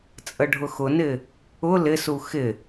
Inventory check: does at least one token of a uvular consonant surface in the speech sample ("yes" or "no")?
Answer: no